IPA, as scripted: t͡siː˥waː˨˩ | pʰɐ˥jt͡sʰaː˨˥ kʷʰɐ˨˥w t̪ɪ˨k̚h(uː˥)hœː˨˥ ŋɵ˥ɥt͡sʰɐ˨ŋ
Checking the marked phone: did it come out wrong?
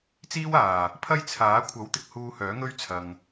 yes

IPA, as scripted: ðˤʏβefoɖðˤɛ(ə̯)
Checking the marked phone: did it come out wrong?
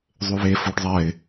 yes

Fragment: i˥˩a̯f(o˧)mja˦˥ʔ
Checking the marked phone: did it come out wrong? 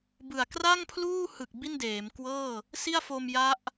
no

